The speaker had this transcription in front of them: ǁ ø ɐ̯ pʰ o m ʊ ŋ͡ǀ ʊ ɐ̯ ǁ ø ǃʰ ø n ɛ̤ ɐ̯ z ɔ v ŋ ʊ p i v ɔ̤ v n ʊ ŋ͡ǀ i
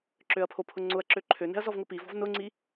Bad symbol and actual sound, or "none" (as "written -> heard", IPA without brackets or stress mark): m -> pʰ